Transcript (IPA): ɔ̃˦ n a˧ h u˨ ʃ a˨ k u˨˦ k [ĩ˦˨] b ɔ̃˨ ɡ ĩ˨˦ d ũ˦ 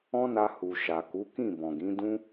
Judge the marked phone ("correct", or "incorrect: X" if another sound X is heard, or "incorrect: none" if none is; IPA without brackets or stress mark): correct